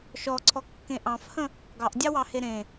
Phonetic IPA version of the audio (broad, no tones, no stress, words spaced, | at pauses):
ʃɔǀʰɔkːẽ ʔɑ̃fhə̃ | ɡɑʔdʲɑwɑhe ɾẽ